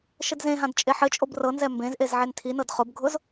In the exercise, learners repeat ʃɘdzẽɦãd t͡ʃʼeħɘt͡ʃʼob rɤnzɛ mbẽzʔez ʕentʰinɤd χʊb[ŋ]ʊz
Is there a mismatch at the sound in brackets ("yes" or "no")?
yes